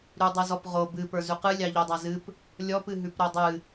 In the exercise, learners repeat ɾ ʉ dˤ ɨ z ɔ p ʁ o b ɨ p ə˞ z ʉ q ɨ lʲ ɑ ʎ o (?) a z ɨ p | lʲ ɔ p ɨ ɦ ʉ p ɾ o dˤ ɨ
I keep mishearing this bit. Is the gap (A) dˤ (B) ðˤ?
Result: A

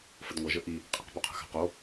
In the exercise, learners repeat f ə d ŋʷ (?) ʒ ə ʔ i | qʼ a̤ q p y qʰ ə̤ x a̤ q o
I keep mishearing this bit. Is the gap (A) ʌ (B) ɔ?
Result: A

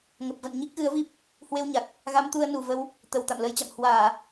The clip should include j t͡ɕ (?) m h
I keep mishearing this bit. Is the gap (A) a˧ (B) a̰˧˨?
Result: B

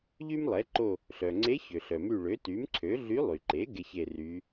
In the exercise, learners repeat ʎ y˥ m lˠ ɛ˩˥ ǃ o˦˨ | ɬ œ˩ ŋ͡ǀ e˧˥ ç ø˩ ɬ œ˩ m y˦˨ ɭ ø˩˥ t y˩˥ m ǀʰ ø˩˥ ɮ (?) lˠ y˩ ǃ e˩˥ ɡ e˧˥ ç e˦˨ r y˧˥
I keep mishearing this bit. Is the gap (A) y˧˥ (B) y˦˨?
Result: A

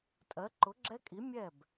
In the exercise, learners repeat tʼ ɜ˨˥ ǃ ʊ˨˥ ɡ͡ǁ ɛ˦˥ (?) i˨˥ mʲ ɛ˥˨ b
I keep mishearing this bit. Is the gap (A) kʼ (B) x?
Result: A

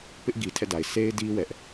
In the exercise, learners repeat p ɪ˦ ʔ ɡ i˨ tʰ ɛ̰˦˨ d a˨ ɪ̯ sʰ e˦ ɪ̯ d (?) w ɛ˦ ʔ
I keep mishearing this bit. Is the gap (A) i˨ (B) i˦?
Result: B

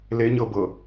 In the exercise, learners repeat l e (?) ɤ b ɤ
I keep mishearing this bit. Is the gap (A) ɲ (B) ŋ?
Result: A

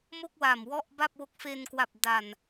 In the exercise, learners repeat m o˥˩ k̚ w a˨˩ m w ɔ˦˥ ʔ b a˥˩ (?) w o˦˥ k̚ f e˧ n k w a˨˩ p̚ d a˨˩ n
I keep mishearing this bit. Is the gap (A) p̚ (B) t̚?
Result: A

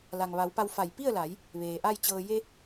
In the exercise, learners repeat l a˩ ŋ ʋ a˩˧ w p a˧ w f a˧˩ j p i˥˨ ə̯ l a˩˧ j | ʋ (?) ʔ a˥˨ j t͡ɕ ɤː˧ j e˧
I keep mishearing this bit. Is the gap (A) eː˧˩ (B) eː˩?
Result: B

